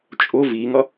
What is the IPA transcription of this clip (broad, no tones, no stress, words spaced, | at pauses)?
t͡ʃʼʊ viŋʌ